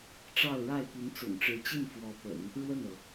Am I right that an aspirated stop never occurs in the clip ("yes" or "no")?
yes